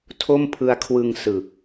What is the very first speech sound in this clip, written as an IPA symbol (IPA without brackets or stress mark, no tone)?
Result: tʰ